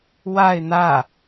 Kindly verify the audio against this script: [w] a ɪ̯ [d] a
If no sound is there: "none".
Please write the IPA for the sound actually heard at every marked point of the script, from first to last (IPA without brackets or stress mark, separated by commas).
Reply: w, n̪